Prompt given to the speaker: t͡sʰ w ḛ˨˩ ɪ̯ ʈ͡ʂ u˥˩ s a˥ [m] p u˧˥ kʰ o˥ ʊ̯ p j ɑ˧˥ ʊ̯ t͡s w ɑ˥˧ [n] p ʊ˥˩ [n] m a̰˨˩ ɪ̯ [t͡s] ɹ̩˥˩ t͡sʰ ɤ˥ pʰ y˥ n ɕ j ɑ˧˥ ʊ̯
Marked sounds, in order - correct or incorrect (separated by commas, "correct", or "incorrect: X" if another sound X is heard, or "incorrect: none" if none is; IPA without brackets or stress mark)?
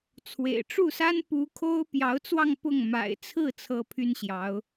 incorrect: n, incorrect: ŋ, incorrect: ŋ, incorrect: t͡sʰ